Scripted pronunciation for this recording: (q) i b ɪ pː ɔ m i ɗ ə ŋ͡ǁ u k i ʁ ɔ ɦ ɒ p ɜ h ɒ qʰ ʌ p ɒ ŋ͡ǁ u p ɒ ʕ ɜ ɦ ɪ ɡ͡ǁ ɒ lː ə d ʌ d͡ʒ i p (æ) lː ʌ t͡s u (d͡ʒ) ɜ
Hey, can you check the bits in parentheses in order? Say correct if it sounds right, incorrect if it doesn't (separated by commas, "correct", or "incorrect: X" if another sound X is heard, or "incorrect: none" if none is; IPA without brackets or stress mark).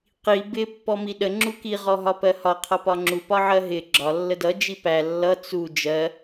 correct, correct, correct